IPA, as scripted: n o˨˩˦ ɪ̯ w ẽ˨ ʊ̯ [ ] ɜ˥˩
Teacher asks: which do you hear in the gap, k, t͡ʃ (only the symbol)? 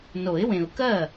k